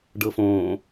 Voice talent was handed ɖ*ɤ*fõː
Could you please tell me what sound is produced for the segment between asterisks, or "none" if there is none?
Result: ɤ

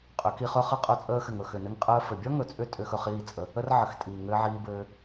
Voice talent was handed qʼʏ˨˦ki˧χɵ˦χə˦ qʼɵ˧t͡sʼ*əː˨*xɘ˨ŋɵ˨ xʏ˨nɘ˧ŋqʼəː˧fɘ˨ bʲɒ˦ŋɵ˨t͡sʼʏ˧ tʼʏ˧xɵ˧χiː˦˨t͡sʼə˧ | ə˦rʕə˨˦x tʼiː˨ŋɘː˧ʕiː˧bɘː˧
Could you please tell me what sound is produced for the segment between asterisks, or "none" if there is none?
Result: əː˧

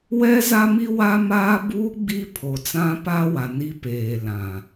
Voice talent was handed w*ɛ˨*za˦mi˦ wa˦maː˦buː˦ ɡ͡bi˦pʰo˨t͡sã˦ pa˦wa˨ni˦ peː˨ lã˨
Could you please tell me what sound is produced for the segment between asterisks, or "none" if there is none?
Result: ɛ˦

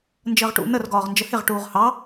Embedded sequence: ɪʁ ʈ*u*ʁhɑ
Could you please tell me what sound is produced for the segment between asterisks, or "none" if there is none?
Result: uː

